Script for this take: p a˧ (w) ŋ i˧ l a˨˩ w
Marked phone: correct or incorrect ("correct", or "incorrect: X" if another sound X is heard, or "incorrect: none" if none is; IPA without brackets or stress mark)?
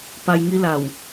incorrect: j